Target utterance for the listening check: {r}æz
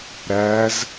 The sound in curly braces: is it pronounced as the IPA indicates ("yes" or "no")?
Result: no